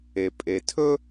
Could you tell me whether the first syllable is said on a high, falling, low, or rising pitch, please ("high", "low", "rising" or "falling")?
low